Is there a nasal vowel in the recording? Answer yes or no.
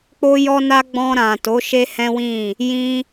yes